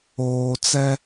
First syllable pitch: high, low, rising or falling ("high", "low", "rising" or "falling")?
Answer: low